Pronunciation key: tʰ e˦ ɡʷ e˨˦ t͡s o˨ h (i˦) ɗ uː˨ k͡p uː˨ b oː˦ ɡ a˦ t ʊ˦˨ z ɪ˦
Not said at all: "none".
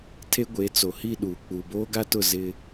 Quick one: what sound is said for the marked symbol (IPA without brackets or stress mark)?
i˦˨